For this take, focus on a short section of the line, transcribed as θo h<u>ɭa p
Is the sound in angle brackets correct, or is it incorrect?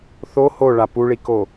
incorrect